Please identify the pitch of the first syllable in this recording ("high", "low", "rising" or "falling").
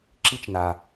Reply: high